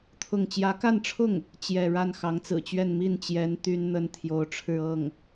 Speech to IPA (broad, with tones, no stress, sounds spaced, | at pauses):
t̪ʰ ʊ˥˩ ŋ t͡ɕ j ä˧˥ k a˥˧ n ʈ͡ʂʰ ʊ˥˩ ŋ | t͡ɕ j ɛ˥˧ ɻ a˥˩ n x ɑ˧˥ ŋ t͡s ɹ̩˨˩ t͡ɕ ɥ ɛ˥˧ n m i˥˩ n t͡ɕ j ɛ˧˥ n t̪ y˥ n n̪ ə˥ n t̪ʰ j o˧˥ ʊ̯ ʈ͡ʂʰ ɻ̩˥˧ ɤ˥˩ ŋ